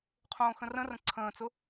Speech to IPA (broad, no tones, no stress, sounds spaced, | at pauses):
qʰ õː x ə̃ r ə̃ r ə̃ ǀʰ ə̃ː t͡s ʊ